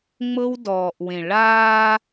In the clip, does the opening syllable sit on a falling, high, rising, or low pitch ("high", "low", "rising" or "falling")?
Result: high